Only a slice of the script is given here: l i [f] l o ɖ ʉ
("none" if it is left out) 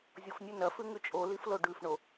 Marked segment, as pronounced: f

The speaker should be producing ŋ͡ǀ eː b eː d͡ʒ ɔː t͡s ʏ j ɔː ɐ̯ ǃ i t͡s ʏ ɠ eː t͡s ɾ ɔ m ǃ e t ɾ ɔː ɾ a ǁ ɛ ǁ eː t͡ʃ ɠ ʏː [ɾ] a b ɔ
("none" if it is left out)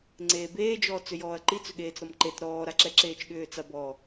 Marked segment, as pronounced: t͡s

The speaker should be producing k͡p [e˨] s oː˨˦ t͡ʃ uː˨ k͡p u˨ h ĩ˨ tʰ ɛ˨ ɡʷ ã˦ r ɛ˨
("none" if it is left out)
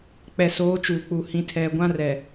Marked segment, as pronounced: ɛ˨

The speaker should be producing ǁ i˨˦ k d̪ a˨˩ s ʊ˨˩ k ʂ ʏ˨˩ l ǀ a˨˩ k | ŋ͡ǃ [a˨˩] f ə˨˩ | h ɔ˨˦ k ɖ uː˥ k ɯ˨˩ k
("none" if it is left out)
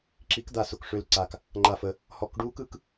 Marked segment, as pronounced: a˨˩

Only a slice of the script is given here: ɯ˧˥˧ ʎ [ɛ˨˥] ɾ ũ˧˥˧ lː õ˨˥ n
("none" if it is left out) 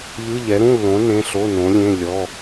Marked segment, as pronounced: ɛ˨˥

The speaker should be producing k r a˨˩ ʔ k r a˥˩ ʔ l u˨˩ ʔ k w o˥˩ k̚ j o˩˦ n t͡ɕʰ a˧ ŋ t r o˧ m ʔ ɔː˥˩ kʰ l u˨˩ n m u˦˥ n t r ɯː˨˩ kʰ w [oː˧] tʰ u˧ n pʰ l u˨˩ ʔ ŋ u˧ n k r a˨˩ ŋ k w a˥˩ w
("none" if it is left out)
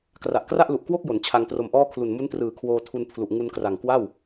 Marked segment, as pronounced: oː˧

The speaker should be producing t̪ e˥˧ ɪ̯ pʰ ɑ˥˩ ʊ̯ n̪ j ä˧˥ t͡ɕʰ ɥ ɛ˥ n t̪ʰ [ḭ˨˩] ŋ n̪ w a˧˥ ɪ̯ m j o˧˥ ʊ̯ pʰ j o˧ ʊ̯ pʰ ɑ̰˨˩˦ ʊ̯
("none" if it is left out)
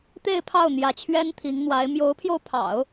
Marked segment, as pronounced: i˧˥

